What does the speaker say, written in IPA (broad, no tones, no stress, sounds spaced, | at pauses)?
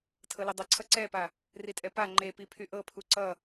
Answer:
tʰ ɤ l i dˤ ʌ ǀʰ ʌ ǀ ɛ p a | r i tʼ ɛ p a ŋ͡ǃ e p i pʰ y ʔ ɤ pʰ u ǀ ʌ